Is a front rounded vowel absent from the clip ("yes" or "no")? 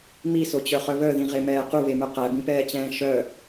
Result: no